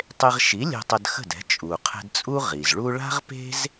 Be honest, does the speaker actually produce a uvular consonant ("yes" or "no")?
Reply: yes